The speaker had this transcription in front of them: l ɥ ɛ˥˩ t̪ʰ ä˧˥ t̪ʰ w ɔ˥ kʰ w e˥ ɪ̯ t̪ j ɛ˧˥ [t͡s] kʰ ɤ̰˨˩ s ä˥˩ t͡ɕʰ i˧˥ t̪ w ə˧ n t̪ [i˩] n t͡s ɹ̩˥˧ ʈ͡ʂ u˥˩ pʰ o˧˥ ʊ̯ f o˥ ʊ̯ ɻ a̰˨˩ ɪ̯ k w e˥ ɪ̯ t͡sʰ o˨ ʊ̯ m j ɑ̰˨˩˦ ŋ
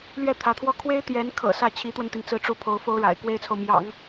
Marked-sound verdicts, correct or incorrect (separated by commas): incorrect, correct